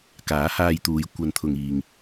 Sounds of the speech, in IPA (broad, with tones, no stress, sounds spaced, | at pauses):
k aː˨˥ h aː˧ j t̪ uː˨˧ j kʷ ɐ˧ n t̪ʰ ʊ˨ ŋ iː˨ ŋ